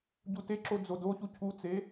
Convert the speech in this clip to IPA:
ɟuteǁo d͡zodoçu cʰut͡se

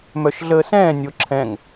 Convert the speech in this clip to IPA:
mœʃɮəːsɛ̃ː nʲoǁʰɛ̃ŋ

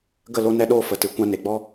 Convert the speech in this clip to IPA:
ɡə˦˨ lo˦nɛ˦ɗoː˦ fə˨tɨ˨ kʷã˧ne˨ɡ͡bɔ˦

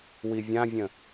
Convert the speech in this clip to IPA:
wivʲãvʲə̃

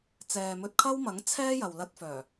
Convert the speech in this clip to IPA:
t͡sɛː˨mɵ˧t̚kʰɐ˥wmɐ˨˥ŋ t͡sʰɛː˥jɐ˨wlɐ˧t̚fœː˨˩

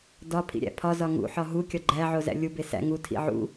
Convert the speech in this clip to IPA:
dɒ pʰḭɾʲæ̰pʰɒzɒ ŋṵħɒ ɦukʲɒ ɡ͡ǃæʕo zæ̰lʲube sæ̰ ŋutʰḭ ʕṵ

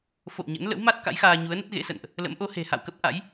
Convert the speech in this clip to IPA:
fo̰˧˨w ɲə̰˧˥n lə̰˧˥w ma˦˥t̚ ka̰˧˥jxaː˧ɲu˨˦ə̯nə˦˥t̚ ɣḛ˧˥sə̰˧˨nʔ | lə̰˧˥mʔo˨˦ he̤˨˩ha̰˧˨wkə˦˥p̚ʔa̰˧˥j

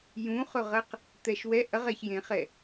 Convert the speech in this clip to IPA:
jũχɵʁɐq | t̪ɛʃwɛ ʔɐʁ ɛçjẽχɛ

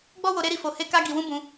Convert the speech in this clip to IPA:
ɡ͡bɔ˦wo˧ ɾe˦ɾi˦˨fo˧ he˦ka˦ɡi˧wũ˦ bũ˧

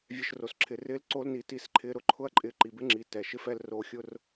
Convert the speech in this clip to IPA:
vʲɛ˦ʃro˧sǁʰɪː˧ rɪː˦lǀoː˦lniː˧ ti˦sǃʰɪː˦ ɾʊ˧ǃʰʊ˦ɐ̯ǃʼɪː˧ ǃi˨bɪ˦ŋ͡ǁiː˨ tɛ˨ʃɪ˦fɛ˦l roː˧ xʲʊ˦r

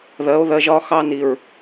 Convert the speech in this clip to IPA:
ðɜ˨˦o̯ðɜ˧ʒ ɒ˦ xɑ˦ni˨ɹ

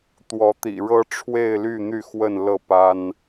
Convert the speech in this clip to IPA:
t̪wɔ˨˦t̪ḭ˨˩ɻɤ˦ ʈ͡ʂʰwe˥˨ɪ̯ly˥˨n̪y˥˨ xwə˥˨nlɤ˥˨pa˦n

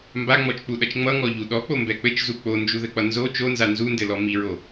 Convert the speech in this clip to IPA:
mbaŋ͡mɔt͡ʃk͡puɗʌt͡ʃ ŋ͡mʌŋɔʎu ɗɔk͡pombɛ k͡pɘt͡ʃzu k͡pond͡ʒuðɘk͡pʌ nzo t͡ʃonza nzundɘlɔ miɹo

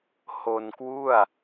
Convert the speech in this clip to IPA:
ho˧nkwu˥˩a̯

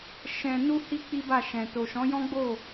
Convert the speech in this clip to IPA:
ʃɛ̃˧ nu˦hi˦ k͡pi˦ba˦˨ʃɛ̃˨ to˨ʃɔ̃˨˦jɔ̃˦ɡ͡bo˦˨

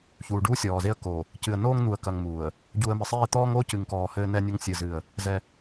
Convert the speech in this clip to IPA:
çuː˨ɖuː˦sʲɔː˨ze˦ə̯ ko˨ | cɨ˨ə̯noː˦ŋn̪u˨ə̯kɐ˨ŋ muː˨ə̯ | ɟu˨ə̯mɘ˨sˤeː˦˨t̪ɔː˦ŋ oː˦cɨ˨ŋkɔː˨ hɘː˦nɛ˦nʲɘ˦ŋ sʲɨ˦˨zɨ˦˨ə̯ | zɛ˦

